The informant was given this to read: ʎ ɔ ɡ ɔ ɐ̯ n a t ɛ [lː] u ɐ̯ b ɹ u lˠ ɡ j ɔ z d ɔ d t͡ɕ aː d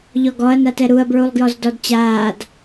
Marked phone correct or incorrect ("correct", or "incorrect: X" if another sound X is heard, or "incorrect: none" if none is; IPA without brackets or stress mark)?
incorrect: ɾ